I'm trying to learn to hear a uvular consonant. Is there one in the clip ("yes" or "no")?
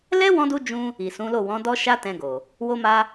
no